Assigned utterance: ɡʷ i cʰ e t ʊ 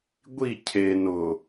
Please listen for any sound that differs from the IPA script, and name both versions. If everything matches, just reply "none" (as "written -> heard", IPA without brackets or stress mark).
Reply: t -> n